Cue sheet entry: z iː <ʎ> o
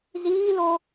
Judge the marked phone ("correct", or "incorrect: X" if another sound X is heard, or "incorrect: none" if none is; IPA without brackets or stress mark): incorrect: l